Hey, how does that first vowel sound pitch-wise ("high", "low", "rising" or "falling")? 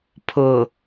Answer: low